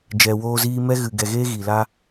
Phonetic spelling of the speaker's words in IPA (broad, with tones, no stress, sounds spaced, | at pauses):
d͡ʒ ɛ˨ w oː˧ z iː˧ m ɛ˧ ɣ ɨ˨ ɡ ɛ˨ ɣ eː˧ ɣ i˨ l a˦